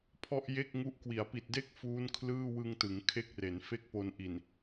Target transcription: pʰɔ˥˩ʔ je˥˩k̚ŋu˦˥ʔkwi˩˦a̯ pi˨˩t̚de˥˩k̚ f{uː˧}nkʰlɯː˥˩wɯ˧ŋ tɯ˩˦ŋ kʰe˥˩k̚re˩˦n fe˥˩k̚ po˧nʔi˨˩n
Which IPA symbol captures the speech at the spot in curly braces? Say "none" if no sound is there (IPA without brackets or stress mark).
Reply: uː˦˥